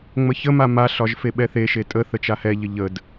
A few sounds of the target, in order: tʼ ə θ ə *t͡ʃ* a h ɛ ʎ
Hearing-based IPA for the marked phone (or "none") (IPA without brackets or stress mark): t͡ʃ